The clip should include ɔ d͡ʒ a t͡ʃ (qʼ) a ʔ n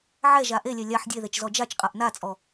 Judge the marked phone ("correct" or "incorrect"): correct